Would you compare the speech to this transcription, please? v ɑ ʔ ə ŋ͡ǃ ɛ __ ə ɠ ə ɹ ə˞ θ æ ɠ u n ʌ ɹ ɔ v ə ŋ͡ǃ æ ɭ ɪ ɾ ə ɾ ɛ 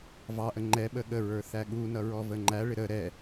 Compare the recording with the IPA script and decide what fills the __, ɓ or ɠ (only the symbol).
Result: ɓ